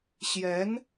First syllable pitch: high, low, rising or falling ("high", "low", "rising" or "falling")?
rising